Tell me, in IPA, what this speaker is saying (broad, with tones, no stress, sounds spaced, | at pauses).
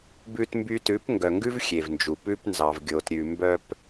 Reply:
b ʉ˧ t m b y˧ t ʉ˨˦ p ŋ ɡ œ˨ ŋ ɡ ʉ˦ v xʲ e˨ v n d͡ʒ u˨ p ʉ˧ p n z ɑ˨ v ɡʲ o˨ t ɾʲ ʉ˨ m b œ˧ p